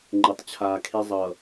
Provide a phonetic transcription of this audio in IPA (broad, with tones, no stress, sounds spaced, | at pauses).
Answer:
ŋ͡ǃ ɛ˨ tˤ t͡ɕʰ aː˨ kʰ e˦ zˤ ʌ˨